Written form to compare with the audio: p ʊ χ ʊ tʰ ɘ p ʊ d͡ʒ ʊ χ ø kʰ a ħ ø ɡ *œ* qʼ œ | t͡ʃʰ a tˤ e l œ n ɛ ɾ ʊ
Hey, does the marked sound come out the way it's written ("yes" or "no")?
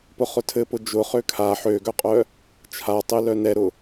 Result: yes